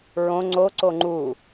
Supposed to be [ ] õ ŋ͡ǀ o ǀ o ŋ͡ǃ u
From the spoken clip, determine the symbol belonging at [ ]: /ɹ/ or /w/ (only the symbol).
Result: ɹ